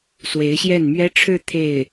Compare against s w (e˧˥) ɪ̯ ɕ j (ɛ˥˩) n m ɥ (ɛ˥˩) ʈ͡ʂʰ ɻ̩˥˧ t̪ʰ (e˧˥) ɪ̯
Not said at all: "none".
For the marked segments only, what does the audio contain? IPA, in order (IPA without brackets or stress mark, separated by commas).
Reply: e˧˥, ɛ˥˩, ɛ˥, e˥˩